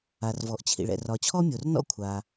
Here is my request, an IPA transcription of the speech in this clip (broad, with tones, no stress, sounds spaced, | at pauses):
a˩ r v ɔ˩ ʔ t͡ɕʰ ḭ˩ ɭ ɛ̰˩ r ɒ˩ t͡ɕʰ ɔ˥ mʲ o˩ r n ɔ̰˥ kʷʰ a˩